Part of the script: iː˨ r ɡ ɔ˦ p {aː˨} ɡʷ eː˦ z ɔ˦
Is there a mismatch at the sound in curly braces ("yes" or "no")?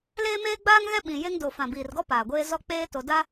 no